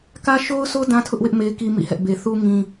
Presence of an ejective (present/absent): absent